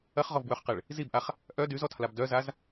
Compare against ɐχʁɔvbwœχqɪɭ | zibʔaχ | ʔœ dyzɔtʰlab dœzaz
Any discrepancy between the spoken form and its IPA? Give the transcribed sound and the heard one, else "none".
none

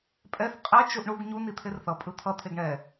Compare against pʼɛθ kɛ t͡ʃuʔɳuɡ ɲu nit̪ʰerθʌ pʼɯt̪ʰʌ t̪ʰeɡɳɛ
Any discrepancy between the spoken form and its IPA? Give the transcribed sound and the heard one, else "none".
k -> qʼ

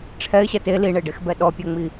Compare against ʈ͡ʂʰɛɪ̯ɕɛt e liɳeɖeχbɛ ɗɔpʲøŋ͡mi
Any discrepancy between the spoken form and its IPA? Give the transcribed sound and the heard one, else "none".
χ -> x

